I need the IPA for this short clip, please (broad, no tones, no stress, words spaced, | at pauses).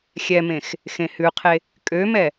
xʲɛmẽx | xẽhʉqʰe | kʼømɛ